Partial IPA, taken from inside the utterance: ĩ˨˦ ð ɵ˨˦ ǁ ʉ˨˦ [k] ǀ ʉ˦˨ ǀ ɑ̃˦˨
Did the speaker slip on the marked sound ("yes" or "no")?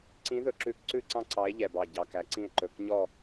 no